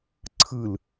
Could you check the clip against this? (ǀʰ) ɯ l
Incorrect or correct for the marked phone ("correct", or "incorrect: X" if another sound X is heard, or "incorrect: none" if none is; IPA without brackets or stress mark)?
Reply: correct